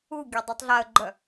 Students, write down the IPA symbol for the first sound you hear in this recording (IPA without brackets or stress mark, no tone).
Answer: u